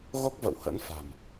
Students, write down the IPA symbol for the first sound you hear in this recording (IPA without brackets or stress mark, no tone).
ɣ